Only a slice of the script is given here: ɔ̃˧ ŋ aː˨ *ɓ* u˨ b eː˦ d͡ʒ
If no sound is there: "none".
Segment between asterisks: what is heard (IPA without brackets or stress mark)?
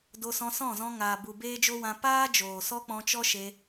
b